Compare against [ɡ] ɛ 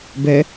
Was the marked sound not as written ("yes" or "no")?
yes